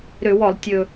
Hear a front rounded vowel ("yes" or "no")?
yes